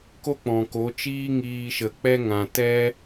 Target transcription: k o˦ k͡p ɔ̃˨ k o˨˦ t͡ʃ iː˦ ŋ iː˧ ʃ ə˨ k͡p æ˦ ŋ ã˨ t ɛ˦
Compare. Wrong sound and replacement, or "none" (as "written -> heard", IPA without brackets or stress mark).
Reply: æ˦ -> ɛ˦